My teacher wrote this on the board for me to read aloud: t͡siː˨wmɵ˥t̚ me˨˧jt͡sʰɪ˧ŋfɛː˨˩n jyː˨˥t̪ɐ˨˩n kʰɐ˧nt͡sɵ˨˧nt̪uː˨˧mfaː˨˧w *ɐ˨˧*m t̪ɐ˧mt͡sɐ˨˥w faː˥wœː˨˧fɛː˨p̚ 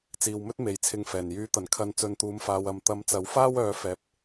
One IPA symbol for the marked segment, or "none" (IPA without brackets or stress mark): ɐ˨˧